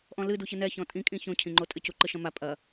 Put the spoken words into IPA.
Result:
ʔ ɔ̃ l ɨ d u ç ɨ n ɛ ç ɔ̃ tʼ ĩ kʼ ĩ ç õ cʰ ĩ ŋ͡ǃ o tʼ ɘ c u ǃ ɨ ʃ ɐ̃ m a pʼ ɐ

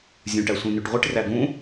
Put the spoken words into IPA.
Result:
zʲ ũ ʈ æ sʷ ĩ n y ʈ ʁʷ ɯ ʈ r æ ɡ ũ

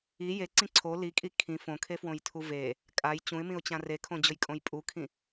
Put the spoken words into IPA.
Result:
i j e ǀ ĩ ǀʰ o l i kʼ i kʰ ĩ f õ kʰ e f w õ j tʰ u v e | kʼ a j t͡ɕ ũ ɪ̯ m ĩ ʊ̯ t͡ɕ ã r e kʰ õ d͡ʑ ʊ j kʼ õ j pʼ u kʰ ĩ

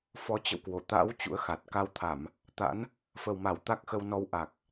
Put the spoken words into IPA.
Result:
f ɔ˨˦ t͡ɕ ə̰˧˨ w k w o˧˩ t̪ a̰˧˥ w t͡ɕ ṵ˧˥ ə̯ x a˨˩ t̚ k a˧ w t̪ʰ a˧˩˨ m | t̪ a̰˧˥ n | f ə˨˩ w m a˧˩ w t̪ a˦˥ k̚ x ə˧ w n ɔ˧ w ʔ a˨˩ k̚

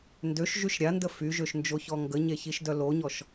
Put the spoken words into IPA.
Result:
n d ø ʃ ʒ y ʃ ɾʲ a n d ə f y ʒ ø ʃ n d͡ʒ o ç ɔ ŋ ɡ ə ɲ e ç i ʃ d œ l o ɲ ɔ ʃ

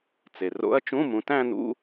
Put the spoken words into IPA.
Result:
t͡s e˩ r o̰˧˥ ɐ̯ t͡ʃ ũ˧˥˧ m ũ˩˧ t æ̃˥˧ n̪ ṵ˧˥˧

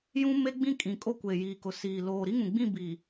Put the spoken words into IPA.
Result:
j ũ˦ m e˦ ɡ͡b ĩ˦ kʼ ĩ˨ kʼ o˦ kʷ e˨ j iː˨ k ʊ˨ s iː˨ l oː˨ ɾ i˦ ŋ ũ˨ ɡ͡b ĩ˦˨ b i˨

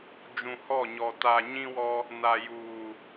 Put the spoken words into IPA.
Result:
d͡ʒ ũ˨ h ɔ˦˨ ɲ ɔ˨ t a˨ ɲ ĩ˦ w ɔ˦ | n a˨ j uː˨

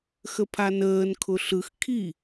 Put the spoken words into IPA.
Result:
x ə pʰ a n əː n kʰ ʊ ɬ ɯ x kʰ i

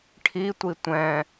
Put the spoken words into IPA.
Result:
ʈʰ i tʷ i tʷ ɛ̃

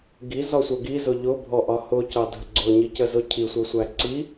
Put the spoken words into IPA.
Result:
ɡ i z ɒ sʷ ɜ ɡ i z ʊ ʎ ʊ bʱ ɔ ʔ ɒ h ʊ c ɑ dʱ ə ɡ͡ǀ ʊ ɲ i c ə z ʊ cʰ i sʷ ʌ sʷ æ ǀ i

